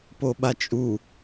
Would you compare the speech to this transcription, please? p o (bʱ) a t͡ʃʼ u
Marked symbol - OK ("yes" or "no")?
no